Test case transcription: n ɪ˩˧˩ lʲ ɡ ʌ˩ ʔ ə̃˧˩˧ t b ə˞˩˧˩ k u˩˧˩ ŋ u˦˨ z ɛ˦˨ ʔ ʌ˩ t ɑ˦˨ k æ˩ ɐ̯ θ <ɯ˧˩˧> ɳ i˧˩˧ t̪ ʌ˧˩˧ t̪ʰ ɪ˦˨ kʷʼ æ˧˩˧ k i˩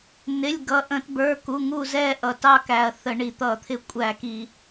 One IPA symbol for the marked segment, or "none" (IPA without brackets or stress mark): ə˧˩˧